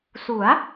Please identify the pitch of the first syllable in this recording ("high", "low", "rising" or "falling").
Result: rising